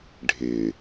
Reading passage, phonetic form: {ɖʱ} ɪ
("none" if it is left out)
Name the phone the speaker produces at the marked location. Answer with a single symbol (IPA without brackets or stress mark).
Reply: ɖʱ